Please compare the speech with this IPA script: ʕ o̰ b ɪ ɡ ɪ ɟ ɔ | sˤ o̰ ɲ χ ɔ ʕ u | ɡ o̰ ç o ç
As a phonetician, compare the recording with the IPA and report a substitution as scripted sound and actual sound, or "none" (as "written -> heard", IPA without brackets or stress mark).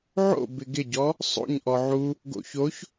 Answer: χ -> ʔ